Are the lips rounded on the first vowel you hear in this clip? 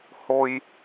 yes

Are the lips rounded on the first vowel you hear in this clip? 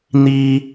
no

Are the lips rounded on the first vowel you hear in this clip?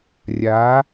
no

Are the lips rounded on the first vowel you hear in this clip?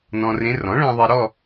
yes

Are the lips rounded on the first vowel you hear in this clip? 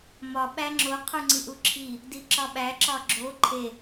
yes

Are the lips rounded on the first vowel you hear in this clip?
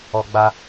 yes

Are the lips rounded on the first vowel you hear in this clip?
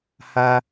no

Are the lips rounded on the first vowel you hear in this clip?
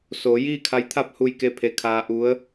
yes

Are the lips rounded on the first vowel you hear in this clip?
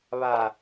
no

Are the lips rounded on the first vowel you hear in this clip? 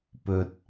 yes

